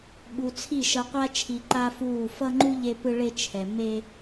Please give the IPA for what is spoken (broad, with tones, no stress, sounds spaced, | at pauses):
ɓ u˨ t͡sʰ i˦˨ ʃ ʌ˦ qʷ a˦ t͡ʃʰ i˨ ǃ a˦ f uː˦˨ f ʌ˦ ŋ͡ǃ u˦ ʎ e˦ p ɯ˦ ɭ e˦ t͡ʃʰ ɛ˨ m e˦